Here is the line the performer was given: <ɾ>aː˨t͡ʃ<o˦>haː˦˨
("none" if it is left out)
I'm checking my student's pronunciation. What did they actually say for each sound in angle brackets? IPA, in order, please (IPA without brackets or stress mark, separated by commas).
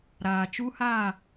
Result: ɾ, u˦